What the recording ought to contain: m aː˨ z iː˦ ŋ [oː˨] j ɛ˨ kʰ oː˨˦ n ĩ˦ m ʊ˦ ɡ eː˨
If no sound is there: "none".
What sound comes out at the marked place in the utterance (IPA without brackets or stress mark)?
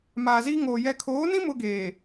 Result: oː˨